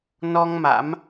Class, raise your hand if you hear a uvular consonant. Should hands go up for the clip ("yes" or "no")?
no